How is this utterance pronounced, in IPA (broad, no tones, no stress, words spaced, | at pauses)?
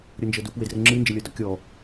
ɾʲɤnd͡ʒɤdup wedrəŋ͡ǁɨ nd͡ʒəlʲɤdɔkʲɔ